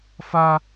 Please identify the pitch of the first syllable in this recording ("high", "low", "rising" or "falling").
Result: high